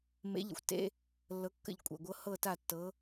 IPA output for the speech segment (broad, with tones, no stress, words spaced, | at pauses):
mḛ˨˥ʎə̰˨˩xʷtḛ˧˥˧ | lːɤ˨˥kːə̰˦˨ʎkʷʼḛ˨˩ ɡʷɤ˨˥ hɤ˦˨ta˦˨ tːɤ˨˥